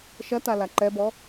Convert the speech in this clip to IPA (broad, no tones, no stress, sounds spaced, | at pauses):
ʃ ɐ t a l a ǃ ɛ b ɔ